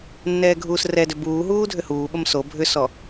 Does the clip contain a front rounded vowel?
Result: yes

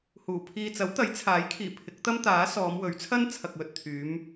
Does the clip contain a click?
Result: no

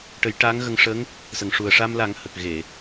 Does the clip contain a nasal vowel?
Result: no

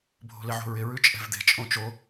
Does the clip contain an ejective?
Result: yes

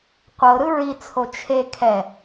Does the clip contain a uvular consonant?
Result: yes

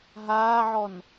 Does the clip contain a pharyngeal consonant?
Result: yes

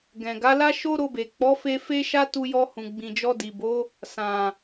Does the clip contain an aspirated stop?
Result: no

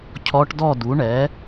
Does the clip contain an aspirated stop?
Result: yes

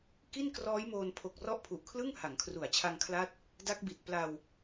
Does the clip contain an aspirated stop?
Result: yes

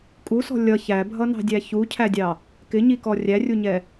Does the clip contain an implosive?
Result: no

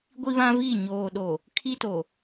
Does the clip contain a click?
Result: no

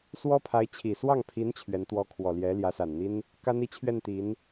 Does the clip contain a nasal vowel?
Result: no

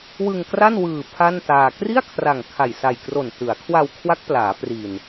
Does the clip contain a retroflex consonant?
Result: no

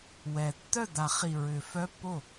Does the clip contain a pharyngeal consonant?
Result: no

